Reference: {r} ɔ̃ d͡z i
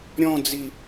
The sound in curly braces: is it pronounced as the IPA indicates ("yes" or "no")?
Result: no